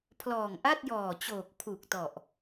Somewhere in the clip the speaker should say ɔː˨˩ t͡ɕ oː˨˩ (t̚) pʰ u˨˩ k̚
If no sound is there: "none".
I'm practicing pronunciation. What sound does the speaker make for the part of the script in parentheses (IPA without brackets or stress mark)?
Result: k̚